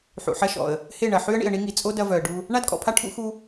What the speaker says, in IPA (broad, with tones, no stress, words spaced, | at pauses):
ħṵ˨ħɐ˦ʃɔ̰˨ə̯ | he˦˨ɳɐ˨ ħy˦ə̯ɳḭ˨ə̯ɳi˦ŋi˨ t͡sʼo˦ dɐ˦vœ˨ə̯ ɖu˦ | ɳa˦dkʼɔ̰˨pʰa˦ ʈʰṵ˦xu˦